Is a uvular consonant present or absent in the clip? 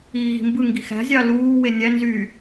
absent